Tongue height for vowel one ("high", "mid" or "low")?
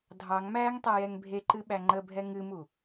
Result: low